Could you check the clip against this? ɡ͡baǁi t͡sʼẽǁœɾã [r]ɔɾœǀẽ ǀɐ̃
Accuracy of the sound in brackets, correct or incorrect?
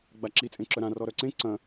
correct